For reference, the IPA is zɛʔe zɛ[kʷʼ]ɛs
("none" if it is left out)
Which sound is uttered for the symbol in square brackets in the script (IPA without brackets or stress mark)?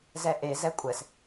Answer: kʷʼ